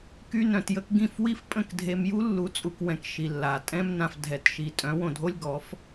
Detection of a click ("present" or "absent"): absent